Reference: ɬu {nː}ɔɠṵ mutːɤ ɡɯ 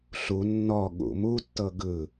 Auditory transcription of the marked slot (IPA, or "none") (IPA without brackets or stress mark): nː